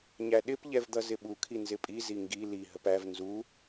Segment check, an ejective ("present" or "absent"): present